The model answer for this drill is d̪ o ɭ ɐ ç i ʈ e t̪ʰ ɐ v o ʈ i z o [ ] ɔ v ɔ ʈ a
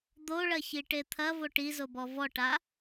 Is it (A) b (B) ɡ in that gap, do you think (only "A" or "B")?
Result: A